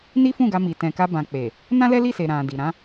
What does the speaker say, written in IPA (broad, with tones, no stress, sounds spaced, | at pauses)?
n i˦ f ũ˦˨ ɡ a˧ m i˨ t ɛ̃˨ k a˧ b ã˨ k͡p e˨ | n ã˦ l ɛ˦ l i˦˨ s e˨ ɾ ã˨ d i˨ ɾ ã˨˦